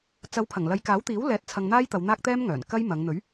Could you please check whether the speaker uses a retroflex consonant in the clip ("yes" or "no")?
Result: no